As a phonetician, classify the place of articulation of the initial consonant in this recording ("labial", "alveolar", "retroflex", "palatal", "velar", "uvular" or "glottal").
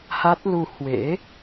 glottal